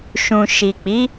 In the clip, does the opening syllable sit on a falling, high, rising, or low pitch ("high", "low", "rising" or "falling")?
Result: low